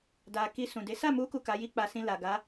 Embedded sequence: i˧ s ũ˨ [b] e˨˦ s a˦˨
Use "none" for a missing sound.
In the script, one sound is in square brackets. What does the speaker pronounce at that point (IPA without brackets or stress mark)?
d